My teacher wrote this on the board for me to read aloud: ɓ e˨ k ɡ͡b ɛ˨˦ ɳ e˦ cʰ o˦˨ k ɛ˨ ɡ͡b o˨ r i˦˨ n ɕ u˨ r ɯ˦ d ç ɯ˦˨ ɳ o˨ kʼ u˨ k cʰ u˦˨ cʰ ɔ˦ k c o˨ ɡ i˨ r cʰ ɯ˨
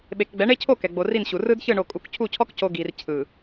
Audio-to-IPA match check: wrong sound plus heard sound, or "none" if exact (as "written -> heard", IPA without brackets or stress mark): none